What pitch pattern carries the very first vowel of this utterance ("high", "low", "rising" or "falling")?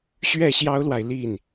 falling